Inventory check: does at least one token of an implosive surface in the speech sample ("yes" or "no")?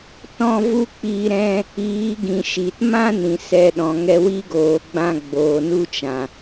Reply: yes